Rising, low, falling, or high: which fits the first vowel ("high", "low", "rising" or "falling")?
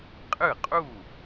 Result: falling